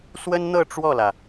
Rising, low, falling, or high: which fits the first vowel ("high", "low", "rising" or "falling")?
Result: high